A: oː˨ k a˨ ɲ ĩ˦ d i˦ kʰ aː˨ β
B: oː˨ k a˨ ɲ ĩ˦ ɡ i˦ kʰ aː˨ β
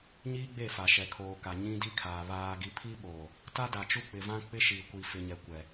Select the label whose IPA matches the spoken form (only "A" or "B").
A